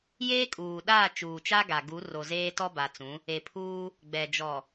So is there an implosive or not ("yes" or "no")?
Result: yes